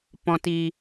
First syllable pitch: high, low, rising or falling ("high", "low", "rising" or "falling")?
low